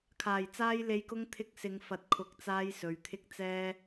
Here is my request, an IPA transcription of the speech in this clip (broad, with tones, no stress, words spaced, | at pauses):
kʰaː˨˩jt͡saː˧jle˨˧jkʊ˧ŋ t̪ʰɪ˧k̚sɪ˨˧ŋ fɐ˨˥t̚kʰʊ˨˥k̚t͡saː˧j sɵ˨ɥt̪ʰɪ˥k̚t͡sɛː˥